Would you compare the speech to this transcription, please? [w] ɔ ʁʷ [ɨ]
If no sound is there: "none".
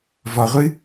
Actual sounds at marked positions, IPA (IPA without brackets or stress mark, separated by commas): v, ɨ